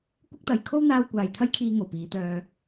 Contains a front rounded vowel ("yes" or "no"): yes